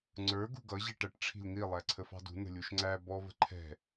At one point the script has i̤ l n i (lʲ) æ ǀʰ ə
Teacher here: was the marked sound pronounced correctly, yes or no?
no